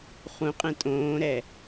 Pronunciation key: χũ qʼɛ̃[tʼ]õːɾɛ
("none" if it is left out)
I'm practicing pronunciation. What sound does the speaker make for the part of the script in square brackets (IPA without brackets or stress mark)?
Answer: tʼ